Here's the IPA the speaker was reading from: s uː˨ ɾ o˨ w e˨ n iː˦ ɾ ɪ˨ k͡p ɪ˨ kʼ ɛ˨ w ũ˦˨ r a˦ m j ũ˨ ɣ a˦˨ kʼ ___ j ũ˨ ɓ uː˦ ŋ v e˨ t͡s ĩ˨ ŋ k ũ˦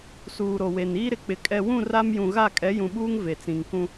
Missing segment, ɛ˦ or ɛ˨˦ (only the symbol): ɛ˨˦